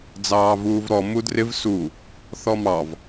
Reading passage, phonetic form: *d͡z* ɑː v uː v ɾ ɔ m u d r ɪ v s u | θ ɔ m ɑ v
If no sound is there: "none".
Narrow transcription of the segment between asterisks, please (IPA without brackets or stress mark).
d͡z